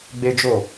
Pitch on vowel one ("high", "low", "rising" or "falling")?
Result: high